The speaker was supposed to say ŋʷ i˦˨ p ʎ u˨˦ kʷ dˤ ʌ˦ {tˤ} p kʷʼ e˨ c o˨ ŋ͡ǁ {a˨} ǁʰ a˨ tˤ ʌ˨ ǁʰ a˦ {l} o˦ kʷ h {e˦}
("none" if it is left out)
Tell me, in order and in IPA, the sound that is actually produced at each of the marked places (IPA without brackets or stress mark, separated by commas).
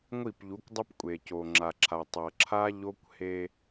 none, a˨, ʎ, e˦